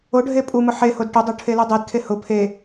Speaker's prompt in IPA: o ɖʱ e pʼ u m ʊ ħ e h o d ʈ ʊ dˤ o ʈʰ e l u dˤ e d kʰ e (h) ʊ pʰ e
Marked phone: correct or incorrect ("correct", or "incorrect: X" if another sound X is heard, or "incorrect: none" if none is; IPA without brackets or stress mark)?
correct